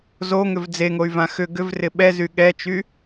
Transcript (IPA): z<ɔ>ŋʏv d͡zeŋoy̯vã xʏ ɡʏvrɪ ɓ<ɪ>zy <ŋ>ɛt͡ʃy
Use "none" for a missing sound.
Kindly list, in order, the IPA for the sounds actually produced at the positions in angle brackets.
o, ɛ, ɠ

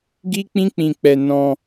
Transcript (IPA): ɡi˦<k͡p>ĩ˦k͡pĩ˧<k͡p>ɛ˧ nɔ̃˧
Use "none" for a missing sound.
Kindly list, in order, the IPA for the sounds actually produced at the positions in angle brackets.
k͡p, k͡p

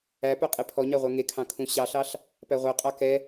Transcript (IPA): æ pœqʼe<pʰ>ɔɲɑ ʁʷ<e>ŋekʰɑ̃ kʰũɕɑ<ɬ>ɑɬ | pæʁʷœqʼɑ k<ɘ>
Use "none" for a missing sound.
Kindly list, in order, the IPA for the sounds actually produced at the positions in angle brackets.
pʰ, ɛ, ɬ, ɛ

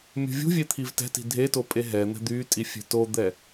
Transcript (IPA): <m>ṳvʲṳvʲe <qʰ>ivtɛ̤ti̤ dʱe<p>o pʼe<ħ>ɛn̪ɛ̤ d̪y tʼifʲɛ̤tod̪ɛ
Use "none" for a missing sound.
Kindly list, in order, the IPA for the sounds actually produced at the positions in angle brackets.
mʲ, t̪ʰ, t, ɦ

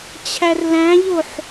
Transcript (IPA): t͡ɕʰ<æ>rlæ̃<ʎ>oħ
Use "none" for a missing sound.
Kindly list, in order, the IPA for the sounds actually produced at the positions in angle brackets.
æ, ʎ

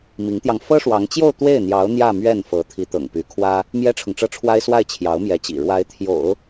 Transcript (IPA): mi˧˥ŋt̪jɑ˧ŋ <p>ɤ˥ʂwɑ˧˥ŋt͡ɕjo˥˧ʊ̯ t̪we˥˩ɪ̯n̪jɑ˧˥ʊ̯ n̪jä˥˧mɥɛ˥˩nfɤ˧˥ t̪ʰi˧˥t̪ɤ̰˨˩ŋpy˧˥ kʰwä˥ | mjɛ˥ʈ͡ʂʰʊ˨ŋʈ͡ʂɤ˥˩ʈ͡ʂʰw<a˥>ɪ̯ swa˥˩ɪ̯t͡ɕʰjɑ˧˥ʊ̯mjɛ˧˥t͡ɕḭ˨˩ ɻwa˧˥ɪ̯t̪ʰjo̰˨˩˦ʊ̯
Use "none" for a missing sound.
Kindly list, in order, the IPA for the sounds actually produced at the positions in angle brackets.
f, a˥

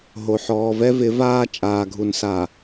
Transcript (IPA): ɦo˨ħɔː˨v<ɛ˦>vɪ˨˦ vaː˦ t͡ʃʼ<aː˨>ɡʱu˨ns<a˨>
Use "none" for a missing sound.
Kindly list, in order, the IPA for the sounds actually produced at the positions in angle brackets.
ɛ˦, aː˨, a˨

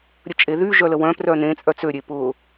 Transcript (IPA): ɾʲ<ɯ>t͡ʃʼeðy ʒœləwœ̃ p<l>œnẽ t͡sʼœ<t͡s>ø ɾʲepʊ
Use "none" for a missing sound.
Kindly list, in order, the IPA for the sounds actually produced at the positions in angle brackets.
ə, r, t͡s

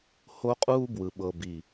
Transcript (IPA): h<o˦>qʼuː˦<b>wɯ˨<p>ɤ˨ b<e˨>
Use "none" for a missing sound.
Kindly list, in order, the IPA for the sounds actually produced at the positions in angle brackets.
o˦, b, ɓ, i˨

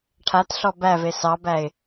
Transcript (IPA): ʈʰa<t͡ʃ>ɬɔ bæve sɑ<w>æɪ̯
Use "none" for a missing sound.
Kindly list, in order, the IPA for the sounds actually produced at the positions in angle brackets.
t, b

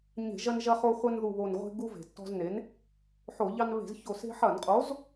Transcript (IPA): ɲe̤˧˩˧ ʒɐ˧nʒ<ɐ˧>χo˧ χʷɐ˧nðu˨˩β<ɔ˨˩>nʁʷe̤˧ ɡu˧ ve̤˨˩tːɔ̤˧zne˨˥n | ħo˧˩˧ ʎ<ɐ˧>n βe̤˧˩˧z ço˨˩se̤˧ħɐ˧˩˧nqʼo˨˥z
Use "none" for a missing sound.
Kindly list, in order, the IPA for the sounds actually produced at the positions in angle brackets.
ɐ˧, o˨˩, ɑ˧

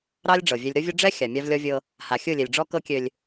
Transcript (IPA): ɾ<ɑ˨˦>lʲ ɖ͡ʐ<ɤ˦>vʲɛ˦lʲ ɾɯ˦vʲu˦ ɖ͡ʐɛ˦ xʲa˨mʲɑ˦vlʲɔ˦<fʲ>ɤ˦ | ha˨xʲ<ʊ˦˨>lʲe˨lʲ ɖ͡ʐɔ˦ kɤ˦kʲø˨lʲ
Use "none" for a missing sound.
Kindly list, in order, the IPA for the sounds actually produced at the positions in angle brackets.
ɑ˦, ɤ˨, vʲ, ɯ˦˨

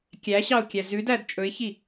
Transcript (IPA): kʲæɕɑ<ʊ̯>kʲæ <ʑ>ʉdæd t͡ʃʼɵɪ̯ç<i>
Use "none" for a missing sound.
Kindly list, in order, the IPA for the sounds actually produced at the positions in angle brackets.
ʊ̯, z, i

